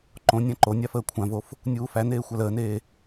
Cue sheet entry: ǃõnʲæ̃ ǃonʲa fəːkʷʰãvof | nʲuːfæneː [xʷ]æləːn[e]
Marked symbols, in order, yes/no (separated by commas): yes, no